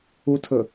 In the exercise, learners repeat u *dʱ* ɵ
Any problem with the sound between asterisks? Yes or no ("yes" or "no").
yes